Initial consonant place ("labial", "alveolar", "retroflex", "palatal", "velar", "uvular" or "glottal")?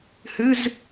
glottal